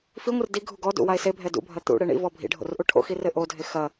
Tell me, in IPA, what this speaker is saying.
f i ŋʷ ɨ r d i ɡʱ u ɡ ɔ d ṵ w a e̯ s e bʱ ɛ d ṵ bʱ ɐ t̪ ṵ ɽ e ɳ ḭ v ɔ bʱ ḭ ɖʱ o̰ r ʔ u ʈʰ o̰ x i r ɘ ʔ o dʱ e x ɐ

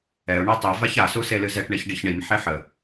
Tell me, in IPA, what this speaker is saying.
ɛ ʊ̯ ɳ ɛ tˤ i v a ç a s u s e l ɨ z ɛ ʈ ɳ e ç ɖ i ç ɳ i m ħ e ħ ə

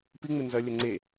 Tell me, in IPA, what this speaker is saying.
p i ŋ͡m ɪ n z ɐ lʲ œ ŋ͡ǀ e

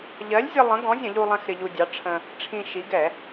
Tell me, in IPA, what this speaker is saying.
ʎ ɜ˨˥ lʲ zʲ ə˧ lˠ ə̃˨˥ ɡ ɔ̃˨˥ zʲ ə̃˧˩˧ ʎ u˧ lˠ ɛ̃˧ x ɾ ɪ˧ ʎ u˧ dʲ ɑ˨˥ ʈ͡ʂʰ ə̃˧ | ʈ͡ʂʰ ĩ˧ ʃ i˨˥ ɡ ɛ˧˩˧

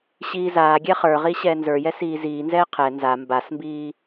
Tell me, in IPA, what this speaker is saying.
ɕ iː z aː ɡʲ ɛ χ ə˞ ʁ i ɕ ɛː n z ə˞ j ɛ s iː z iː n z ɛː qʰ ɛ n z a m b a s m b iː

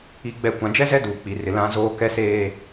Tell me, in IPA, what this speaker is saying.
i˨ ɡ͡b ɛ˨ kʷ ã˨ d͡ʒ ɛ˦ z ɛ˦ d uː˨ k͡p i˨ r ɪ˨ l ã˦ z oː˦ k ɛ˦ s eː˦

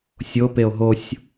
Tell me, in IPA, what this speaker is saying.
sʲ o p e o̯ ɦ o sʲ

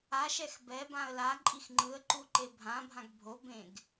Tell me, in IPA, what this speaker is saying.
a ʃ ɛ x b ɛ b ã ə̯ l a ǃʼ i x ŋ͡ǃ ɯ ə̯ ǃ u ǃ e bʱ ã bʱ ã ɡ bʱ o b ẽ ɡ

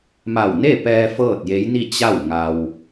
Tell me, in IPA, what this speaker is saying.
m a˧˩ w n e˥˨ p ɛː˧ f ɤː˥˨ t̚ j e˧˥ j n i˥˨ t͡ɕ a˥˨ w ŋ a˧ w

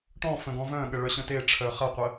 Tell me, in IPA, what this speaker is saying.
ʈ ɔ̃ f ə̃ ɡ ɔ̃ v œ̃ ɠ ə ɭ œ ɕ ə̃ t e ʈ͡ʂʰ œ χ ɐ qʷ ə

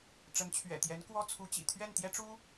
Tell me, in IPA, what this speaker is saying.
ʈ͡ʂ ə˧˥ n t͡ɕʰ ɥ ɛ̰˨˩ t̪ j ɛ˧˥ n k w ɔ˥ t͡sʰ u˧˥ t͡ɕ ḭ˨˩ t̪ʰ ɥ ɛ˥˩ n t̪ j ɛ˥ ʈ͡ʂ u˥

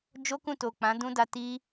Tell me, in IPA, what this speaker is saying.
d͡ʒ o˦ k ũ˦˨ t o˨ k͡p ã˨˦ d ũ˦ d a˧ t i˦

